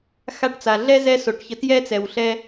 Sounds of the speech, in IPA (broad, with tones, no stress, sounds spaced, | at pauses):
x a˧ ʈ t͡s a˩ ɮ ɛ˥ z ɛ˥ s o˩ ʈ ç ə˧ t j ɛ˥ t͡s ɛ˩ w ɬ ɛ˧